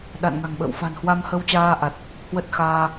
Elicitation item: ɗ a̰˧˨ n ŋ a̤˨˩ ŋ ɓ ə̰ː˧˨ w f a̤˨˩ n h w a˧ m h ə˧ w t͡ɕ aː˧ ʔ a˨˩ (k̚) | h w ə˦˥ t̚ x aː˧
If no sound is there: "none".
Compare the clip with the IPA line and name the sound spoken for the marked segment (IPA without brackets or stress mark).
t̚